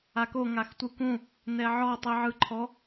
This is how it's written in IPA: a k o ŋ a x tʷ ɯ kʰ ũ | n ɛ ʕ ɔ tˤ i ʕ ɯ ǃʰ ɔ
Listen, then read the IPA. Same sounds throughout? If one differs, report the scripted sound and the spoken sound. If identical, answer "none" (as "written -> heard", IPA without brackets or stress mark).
kʰ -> k